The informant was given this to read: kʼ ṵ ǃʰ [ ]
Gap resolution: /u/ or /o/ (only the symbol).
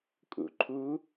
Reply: u